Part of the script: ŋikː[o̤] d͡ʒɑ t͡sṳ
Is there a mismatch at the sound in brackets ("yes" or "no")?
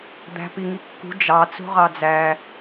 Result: yes